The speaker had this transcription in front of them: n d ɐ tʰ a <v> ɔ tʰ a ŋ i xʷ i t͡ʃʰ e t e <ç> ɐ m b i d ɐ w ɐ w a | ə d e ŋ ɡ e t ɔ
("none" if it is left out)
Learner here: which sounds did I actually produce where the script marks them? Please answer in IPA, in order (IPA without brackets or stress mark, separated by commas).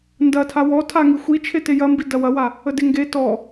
w, j